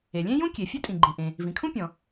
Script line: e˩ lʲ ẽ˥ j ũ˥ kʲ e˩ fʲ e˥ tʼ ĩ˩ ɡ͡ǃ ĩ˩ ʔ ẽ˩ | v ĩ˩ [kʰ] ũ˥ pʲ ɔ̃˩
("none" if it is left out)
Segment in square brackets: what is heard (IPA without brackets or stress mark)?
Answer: kʰ